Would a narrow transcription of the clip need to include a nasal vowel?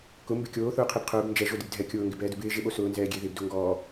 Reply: no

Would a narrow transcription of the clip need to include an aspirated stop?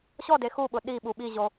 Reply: no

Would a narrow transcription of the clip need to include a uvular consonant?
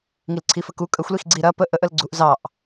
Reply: no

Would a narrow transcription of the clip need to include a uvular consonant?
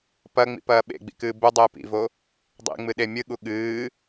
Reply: no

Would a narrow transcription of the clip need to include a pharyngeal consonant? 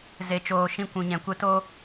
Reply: no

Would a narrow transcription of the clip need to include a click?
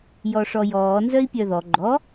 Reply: yes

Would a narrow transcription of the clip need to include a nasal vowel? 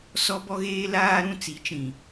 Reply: yes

